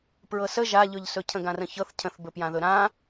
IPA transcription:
pɹɤsə ʒaʎɵʎsɵ cʰə̃ɡãrə̃çɤθ cʰə̃θbɵpjãðɵ ɾã

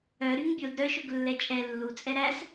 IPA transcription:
œ ɾyŋbʲod ɾœʃɵɡ lːɛt͡ʃʼɛ lːut͡sʼɛ ɾæs

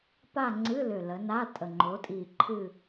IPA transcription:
pa˥˧ŋ͡ǀɨ˧˥˧ lʏ˨˩lə˩˧ na˧˥˧tʼə˨˩ ŋ͡ǃo˩˧tʼi˨˩ ǃʰɨ˥˧

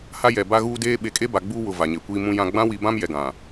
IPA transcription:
ha˦jɛ˨ ba˦ɣuː˦deː˦ ɓe˨˦kʼe˦ba˨ ɡ͡buː˦wʊ˨ va˨ɲe˨kʷiː˦ mũ˦jã˦ ɡ͡bã˦wi˨˦bã˦m jɛ˨ɡã˨

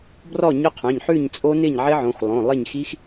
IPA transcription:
brɔ˥˨ɲœ˦˥qʰœ̃˩˧˩ɲħʉ˥˨ɲ t͡sʼo˦˥nɪ˥˨ɲ ʕɪ˦˥ʕõ˩˧˩x lˠõ˩˧˩lˠɪ˥˨ɲxi˦˥x

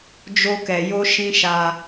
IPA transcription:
d͡ʒo˧kɛ˨jo˧ ʃĩ˦ʃa˧

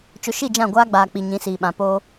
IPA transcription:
t͡ʃʊ˨ʃi˦˨d͡ʒã˦˨ ɡʷaː˦ɡ͡baː˨ k͡pi˨ɲĩ˨˦siː˨ɓã˨ po˦

